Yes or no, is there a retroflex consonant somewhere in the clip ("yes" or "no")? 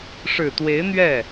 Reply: yes